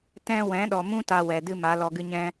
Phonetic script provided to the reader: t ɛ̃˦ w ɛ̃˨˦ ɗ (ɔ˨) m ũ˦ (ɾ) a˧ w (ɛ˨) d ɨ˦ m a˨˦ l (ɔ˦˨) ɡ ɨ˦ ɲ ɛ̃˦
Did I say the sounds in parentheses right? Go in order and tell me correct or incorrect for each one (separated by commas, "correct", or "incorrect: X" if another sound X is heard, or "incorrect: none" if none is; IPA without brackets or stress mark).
correct, incorrect: t, correct, incorrect: ɔ˧